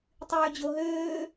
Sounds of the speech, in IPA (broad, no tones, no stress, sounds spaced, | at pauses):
tˤ yː d͡ʑ o ɦ øː